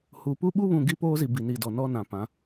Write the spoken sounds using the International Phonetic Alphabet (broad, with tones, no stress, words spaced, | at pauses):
hu˨ pu˦ɓu˦βũ˨ ɡi˦poː˦zi˨ bi˨ni˨dɔ˨nɔ˦ nã˨ pã˨˦